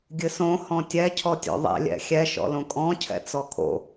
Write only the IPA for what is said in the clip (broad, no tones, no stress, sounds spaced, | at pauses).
ɡʲ ɨ s õ h ɔ̃ tʲ ɛ cʰ ɔ tʲ o̰ ðˤ ɛ̰ lʲ ɛ̰ xʲ ɛ ʃ ɔ̰ l õ kʼ ɔ̃ cʰ ɛ̰ t͡s ɔ kʰ o̰